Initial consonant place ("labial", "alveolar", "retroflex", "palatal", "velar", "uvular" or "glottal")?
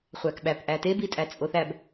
uvular